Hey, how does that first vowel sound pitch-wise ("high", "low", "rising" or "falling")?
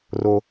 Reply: high